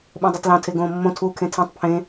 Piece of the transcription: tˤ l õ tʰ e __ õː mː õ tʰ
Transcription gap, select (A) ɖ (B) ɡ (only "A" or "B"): B